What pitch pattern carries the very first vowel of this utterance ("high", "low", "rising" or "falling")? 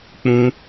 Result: high